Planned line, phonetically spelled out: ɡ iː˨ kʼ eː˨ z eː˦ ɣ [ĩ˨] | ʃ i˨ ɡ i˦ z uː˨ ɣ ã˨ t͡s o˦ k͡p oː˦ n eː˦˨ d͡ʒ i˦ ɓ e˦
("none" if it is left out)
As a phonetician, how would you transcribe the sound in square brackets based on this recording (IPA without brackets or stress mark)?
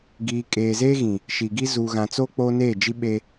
ĩ˨